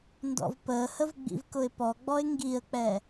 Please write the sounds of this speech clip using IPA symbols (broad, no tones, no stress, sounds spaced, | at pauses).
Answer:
n d ɔ̰ v p əː h ə v ɡ͡b ḭ v k ʊ ɪ̯ p ɔ ɡ͡b ɔ ɪ̯ ŋ ɡ i ə̯ k͡p ɛ